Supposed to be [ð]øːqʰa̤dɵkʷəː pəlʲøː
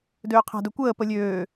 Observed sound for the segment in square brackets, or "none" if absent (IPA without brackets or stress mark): d